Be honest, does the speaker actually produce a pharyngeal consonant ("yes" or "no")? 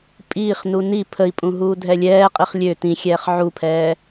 yes